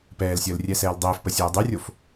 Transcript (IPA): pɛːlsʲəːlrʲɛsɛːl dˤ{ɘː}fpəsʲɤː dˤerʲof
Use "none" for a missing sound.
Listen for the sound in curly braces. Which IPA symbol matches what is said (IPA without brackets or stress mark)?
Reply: ɘː